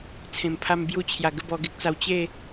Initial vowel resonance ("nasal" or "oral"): nasal